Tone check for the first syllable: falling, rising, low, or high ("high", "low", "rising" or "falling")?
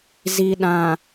low